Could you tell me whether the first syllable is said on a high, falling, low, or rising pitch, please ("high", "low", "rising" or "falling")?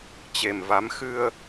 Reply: low